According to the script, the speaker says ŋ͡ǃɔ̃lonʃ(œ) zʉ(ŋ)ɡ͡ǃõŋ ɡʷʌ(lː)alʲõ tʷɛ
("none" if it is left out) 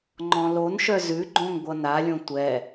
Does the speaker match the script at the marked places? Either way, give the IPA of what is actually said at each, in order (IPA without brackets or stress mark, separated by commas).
œ, none, n